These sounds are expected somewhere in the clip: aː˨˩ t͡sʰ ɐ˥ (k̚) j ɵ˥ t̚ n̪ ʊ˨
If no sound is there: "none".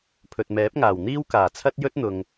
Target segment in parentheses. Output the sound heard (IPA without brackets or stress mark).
t̚